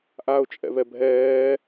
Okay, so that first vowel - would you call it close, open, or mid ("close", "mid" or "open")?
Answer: open